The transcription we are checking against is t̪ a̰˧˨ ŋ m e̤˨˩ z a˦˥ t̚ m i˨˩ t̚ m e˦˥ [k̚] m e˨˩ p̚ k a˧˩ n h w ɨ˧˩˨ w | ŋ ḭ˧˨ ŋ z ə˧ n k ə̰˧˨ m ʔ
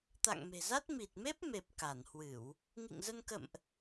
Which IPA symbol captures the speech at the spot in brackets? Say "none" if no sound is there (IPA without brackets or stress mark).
p̚